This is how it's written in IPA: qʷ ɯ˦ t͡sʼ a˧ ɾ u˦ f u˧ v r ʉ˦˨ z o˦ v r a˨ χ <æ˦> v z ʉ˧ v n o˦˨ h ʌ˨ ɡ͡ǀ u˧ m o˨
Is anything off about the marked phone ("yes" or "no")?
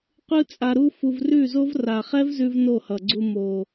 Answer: yes